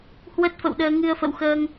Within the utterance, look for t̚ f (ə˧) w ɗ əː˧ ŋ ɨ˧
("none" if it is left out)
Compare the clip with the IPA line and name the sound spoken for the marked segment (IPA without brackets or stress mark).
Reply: ə̰˧˨